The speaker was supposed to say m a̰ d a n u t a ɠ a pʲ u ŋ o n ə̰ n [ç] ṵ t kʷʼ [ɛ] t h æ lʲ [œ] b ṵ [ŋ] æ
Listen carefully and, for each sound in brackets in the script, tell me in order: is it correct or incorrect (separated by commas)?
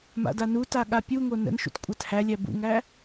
incorrect, incorrect, incorrect, correct